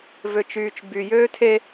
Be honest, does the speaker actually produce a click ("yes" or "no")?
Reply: no